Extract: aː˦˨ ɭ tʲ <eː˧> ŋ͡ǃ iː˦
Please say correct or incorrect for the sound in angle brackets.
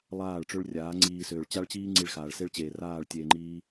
correct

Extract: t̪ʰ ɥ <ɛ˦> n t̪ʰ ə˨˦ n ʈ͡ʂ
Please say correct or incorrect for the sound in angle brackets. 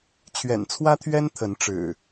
correct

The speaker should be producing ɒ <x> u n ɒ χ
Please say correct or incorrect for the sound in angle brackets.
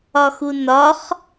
correct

